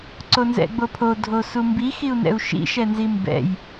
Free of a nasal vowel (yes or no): yes